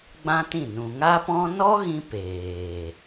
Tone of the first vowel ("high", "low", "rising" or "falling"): high